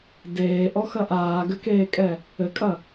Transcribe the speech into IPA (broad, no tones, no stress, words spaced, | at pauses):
deːʔɔxɐ ʔaːɡɘkeːkʼɛ | ɘkʼɐ